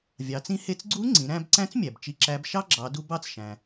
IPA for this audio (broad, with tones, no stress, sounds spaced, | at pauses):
vʲ ɑ˩˧ t͡s ĩ˧ h e˧ t͡s ɡ͡ǀ u˧˥ ŋ͡ǀ ĩ˩˧ ɾ æ̃˧ b ǀ æ̃˧˥ t͡s mʲ æ˩ b t͡ʃ i˧ ǁ æ˧˥ b ʃ ɑ˥ ɡ͡ǁ ɑ˩˧ d u˧ b ɑ˥ t͡s ʃ æ̃˩